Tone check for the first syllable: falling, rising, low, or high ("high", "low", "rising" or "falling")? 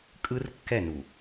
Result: high